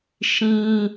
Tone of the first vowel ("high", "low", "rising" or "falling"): high